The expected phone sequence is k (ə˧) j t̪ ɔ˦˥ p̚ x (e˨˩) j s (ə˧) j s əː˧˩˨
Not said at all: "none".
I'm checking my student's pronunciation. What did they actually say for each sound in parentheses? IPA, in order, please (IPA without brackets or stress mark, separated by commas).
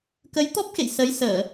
ə˨˦, ḛ˧˨, ə˨˦